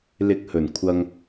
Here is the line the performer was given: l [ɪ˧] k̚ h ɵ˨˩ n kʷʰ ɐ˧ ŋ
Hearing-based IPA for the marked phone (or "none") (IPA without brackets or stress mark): ɪ˧